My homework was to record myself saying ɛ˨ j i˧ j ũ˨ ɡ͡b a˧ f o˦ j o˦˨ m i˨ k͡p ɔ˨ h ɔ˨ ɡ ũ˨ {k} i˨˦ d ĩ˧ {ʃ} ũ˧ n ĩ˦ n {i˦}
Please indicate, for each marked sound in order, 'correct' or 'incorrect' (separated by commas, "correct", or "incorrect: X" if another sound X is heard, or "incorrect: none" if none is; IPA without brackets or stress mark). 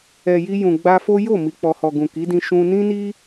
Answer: correct, correct, correct